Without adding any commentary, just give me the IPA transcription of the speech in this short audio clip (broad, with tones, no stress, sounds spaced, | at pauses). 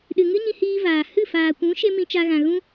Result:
ɗ ɨ˨ ŋ ɨ˦ ɲ ĩ˧ h iː˧ v aː˨ h ɨ˦˨ f aː˨ kʷ ũ˨˦ ʃ e˦ m ĩ˧ t͡ʃ a˧ ɣ ã˨ ɣ ũ˦